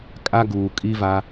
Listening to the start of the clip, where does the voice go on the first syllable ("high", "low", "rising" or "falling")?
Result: high